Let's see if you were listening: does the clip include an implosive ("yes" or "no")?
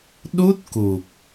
yes